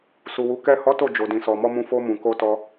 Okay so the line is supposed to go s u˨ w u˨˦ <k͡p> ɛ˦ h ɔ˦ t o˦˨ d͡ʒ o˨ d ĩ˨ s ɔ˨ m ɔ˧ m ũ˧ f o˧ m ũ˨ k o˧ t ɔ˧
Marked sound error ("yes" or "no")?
yes